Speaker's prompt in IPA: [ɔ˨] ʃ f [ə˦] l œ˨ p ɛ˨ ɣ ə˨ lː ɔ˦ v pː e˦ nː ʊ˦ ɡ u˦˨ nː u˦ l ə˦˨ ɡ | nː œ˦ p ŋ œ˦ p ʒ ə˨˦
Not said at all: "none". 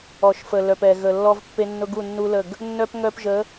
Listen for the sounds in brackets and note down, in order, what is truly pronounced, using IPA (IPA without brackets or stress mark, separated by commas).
ɔ˨, ə˨